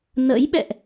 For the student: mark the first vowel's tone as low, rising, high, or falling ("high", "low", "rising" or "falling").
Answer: rising